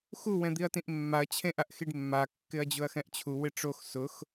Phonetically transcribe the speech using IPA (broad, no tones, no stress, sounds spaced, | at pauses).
x u w ɛ̃ d̪ i ɐ̯ t ĩ ʔ mː a ɐ̯ t͡ɕʰ ẽ ʔ a ʔ x i ɖ mː a kː ɪ ɐ̯ d͡ʑ ʊ ɐ̯ x ɛ̃ ʔ t͡ɕʰ u w ɪ ʈ͡ʂ o x s ʊ x